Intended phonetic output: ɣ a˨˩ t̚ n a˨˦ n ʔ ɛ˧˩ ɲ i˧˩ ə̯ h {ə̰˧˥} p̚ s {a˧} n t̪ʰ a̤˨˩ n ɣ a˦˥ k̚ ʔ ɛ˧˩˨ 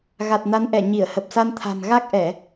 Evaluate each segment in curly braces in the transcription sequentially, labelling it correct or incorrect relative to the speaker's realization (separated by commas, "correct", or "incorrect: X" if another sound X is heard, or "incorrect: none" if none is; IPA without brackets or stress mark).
incorrect: ə˨˩, correct